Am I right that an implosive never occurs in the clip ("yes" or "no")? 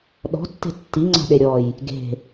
no